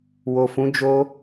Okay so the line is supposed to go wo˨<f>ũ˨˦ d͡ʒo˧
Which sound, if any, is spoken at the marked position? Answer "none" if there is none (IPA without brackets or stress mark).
f